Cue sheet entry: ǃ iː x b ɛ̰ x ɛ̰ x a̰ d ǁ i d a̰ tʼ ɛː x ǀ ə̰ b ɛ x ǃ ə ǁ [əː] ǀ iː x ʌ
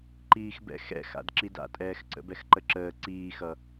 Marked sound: correct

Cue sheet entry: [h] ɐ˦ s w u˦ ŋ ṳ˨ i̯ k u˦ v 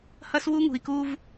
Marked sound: correct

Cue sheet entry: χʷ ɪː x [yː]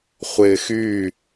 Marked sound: correct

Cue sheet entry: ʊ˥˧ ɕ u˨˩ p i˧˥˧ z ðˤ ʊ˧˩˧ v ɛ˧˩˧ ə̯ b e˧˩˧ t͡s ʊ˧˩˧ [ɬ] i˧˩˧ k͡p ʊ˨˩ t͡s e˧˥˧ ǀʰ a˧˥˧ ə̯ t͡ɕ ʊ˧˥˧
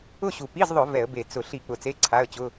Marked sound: correct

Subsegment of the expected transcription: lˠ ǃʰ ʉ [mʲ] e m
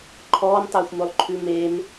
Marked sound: incorrect: m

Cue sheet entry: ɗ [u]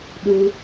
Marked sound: correct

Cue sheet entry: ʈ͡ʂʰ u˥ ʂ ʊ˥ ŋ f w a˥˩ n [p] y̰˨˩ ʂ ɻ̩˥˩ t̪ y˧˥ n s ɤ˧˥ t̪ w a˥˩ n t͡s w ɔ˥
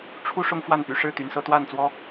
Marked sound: correct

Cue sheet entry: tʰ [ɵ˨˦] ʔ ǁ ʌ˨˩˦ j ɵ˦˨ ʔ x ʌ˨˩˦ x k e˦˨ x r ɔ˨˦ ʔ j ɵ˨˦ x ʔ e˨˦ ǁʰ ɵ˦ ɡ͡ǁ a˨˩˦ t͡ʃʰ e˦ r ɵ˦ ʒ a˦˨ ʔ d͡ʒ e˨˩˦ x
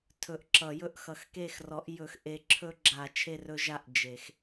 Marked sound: incorrect: ɵ˨˩˦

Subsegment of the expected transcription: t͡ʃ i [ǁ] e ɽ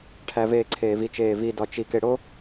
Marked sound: incorrect: k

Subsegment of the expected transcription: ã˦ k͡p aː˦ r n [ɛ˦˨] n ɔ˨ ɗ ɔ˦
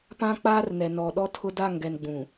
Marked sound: incorrect: ɛ˨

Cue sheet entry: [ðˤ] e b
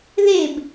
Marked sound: incorrect: ð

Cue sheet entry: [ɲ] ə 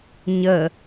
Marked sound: correct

